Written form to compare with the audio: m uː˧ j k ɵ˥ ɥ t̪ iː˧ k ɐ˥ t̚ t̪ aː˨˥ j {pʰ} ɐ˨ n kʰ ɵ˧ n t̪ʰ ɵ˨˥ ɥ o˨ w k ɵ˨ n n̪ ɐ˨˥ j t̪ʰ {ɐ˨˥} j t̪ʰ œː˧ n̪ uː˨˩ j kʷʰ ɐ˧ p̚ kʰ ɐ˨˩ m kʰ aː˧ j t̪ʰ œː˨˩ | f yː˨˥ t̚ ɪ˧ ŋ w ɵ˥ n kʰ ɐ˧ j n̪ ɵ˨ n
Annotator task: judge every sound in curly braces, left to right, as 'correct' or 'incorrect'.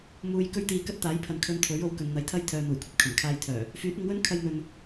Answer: correct, incorrect: ɐ˥

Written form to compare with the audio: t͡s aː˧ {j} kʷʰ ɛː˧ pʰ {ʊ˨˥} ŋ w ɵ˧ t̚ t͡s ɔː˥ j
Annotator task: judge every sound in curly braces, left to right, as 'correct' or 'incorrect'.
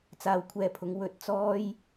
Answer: incorrect: w, correct

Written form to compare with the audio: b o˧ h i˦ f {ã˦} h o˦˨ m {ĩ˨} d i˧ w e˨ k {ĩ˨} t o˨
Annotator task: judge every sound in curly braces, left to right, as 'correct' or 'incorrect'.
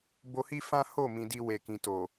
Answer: correct, correct, correct

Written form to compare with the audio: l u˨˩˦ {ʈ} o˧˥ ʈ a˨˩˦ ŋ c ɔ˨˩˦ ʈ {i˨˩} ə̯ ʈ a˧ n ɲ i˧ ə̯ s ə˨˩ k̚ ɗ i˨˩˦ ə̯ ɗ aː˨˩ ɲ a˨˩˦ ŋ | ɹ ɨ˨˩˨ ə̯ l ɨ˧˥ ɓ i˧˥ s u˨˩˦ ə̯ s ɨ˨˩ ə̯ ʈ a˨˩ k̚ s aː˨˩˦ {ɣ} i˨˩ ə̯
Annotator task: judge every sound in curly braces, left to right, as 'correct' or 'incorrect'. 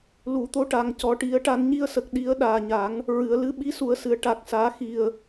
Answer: incorrect: t̪, incorrect: i˨˩˦, incorrect: x

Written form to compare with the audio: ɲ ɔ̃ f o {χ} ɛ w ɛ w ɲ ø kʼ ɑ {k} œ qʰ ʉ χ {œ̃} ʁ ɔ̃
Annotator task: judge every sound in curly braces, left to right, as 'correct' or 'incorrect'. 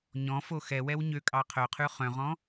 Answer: incorrect: x, incorrect: qʰ, correct

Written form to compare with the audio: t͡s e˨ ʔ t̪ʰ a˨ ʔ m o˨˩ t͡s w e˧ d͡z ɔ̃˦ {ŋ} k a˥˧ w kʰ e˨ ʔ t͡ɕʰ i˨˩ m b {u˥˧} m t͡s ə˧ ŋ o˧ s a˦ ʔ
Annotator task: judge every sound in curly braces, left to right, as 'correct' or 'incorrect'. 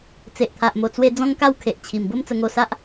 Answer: correct, incorrect: o˥˧

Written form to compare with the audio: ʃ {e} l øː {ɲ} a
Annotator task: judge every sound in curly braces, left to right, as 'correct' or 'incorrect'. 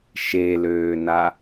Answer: correct, incorrect: n

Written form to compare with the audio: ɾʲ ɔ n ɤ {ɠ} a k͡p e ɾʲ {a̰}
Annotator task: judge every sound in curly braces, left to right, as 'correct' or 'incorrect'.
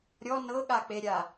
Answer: correct, incorrect: a

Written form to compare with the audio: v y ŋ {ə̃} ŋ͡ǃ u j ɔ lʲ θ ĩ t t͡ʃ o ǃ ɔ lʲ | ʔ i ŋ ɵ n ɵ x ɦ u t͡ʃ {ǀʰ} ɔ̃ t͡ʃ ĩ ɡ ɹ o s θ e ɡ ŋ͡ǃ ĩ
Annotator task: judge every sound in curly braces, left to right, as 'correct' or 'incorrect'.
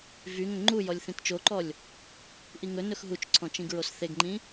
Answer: correct, correct

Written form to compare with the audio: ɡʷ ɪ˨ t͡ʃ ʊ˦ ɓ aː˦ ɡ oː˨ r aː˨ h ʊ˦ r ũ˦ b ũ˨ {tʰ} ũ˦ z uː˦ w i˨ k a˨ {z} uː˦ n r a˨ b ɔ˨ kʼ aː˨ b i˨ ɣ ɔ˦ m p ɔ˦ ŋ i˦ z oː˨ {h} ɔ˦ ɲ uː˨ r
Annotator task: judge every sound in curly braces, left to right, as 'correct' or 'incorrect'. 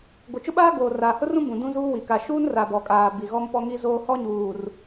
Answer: incorrect: d, incorrect: ʃ, correct

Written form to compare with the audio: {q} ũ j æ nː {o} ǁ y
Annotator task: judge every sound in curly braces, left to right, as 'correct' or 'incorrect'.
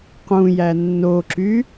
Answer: correct, correct

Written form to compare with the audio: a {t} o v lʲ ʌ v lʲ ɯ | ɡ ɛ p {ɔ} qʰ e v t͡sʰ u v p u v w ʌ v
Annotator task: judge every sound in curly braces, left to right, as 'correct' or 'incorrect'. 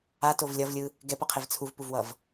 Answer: correct, incorrect: ʌ

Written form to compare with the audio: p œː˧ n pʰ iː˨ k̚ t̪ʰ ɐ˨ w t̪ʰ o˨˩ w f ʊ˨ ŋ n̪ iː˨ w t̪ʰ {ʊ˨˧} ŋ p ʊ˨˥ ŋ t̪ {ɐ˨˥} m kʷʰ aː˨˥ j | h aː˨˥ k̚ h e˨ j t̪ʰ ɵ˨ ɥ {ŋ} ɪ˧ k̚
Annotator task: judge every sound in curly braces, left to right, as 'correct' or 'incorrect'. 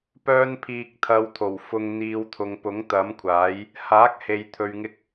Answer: incorrect: ʊ˨, correct, correct

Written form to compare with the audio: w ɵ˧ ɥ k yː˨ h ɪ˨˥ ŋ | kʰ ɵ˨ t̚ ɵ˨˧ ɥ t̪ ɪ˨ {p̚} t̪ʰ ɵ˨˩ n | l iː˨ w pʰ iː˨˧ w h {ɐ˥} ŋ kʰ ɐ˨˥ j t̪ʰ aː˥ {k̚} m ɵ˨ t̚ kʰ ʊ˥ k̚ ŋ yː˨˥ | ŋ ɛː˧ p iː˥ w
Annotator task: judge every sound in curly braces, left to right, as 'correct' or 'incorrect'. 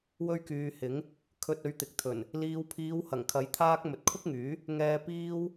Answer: incorrect: k̚, incorrect: ɐ˨˩, correct

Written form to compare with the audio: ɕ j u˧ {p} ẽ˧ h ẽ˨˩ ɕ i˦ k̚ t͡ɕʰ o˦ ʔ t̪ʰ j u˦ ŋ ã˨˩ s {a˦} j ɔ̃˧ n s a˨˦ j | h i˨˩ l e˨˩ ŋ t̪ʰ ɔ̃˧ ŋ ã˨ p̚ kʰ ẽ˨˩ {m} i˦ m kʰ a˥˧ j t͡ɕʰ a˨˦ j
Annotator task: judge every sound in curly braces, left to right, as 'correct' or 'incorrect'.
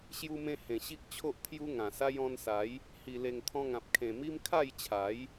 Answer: incorrect: m, correct, correct

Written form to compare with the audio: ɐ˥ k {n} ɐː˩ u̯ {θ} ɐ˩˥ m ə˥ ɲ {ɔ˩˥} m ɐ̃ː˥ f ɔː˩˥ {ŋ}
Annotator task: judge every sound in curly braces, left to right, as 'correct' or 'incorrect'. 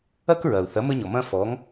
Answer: incorrect: ɹ, correct, incorrect: ɔ˩, correct

